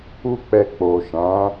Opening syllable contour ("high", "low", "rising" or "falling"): high